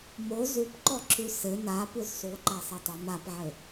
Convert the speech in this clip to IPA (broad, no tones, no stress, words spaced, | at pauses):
mo zupǃɔǁʉ sɘ na pʉzsˤuǃa sˤɘtˤɘm apʕɘ